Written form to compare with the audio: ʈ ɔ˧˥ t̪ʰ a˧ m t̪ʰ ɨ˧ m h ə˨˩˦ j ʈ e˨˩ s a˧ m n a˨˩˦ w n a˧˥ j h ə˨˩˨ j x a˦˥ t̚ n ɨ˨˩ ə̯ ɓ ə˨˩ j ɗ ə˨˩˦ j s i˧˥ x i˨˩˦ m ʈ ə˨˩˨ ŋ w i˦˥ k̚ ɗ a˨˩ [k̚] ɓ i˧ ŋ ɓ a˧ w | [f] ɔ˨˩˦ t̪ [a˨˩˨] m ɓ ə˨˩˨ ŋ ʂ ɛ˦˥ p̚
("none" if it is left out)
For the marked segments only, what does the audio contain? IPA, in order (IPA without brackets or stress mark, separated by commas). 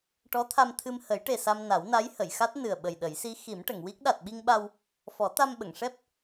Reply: t̚, f, a˧